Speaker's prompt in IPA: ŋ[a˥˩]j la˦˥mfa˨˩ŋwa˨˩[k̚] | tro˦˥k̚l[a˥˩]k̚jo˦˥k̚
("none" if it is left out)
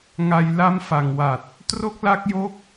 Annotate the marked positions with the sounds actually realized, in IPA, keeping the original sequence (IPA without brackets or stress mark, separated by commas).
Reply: a˧, t̚, a˦˥